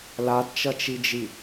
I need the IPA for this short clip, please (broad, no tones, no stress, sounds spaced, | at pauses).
l a d t͡ʃ ʌ t͡ʃ i d͡ʒ i